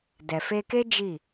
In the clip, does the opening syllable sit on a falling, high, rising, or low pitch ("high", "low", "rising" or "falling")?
low